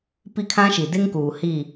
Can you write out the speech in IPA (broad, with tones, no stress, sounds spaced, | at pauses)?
p i˦ kʰ ã˦ ʃ i˨ d e˦ ŋ k uː˨ h i˦˨